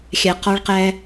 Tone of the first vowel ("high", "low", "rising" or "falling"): low